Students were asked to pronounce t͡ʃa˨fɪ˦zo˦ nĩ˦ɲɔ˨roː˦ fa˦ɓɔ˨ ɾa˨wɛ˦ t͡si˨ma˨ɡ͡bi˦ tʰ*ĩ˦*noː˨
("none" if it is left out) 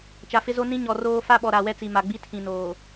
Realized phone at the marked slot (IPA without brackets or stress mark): ĩ˨